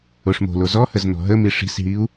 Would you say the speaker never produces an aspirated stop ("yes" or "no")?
yes